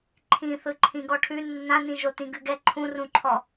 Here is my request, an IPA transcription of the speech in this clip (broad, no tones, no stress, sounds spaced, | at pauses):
ǃʰ ĩ θ ɯ ǃʰ ĩ ɡ ɔ ʈʰ ʉ nː ã n ĩ ʒ o t ĩ ɡ ʉ ɡ ɛ ǃʰ ũ r ũ ǃʰ ɔ